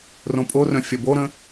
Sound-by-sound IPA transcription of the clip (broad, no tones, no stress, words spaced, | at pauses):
rõpʼorœ̃ fʲɐboɾə̃